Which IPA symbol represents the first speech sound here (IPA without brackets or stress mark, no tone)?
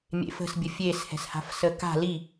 mʲ